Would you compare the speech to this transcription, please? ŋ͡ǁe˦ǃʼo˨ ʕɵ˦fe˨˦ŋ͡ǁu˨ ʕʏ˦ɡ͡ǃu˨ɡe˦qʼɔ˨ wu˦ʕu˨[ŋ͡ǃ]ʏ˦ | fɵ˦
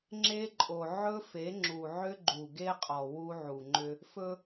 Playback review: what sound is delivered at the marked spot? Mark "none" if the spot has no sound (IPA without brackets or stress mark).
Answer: ŋ͡ǃ